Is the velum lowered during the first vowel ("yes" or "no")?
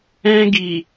yes